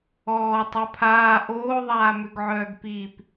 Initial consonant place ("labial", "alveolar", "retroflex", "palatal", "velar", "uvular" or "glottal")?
alveolar